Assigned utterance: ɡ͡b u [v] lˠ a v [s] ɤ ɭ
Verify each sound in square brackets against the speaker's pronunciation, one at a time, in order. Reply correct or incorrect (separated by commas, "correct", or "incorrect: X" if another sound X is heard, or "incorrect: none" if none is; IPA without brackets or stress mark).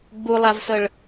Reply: incorrect: none, correct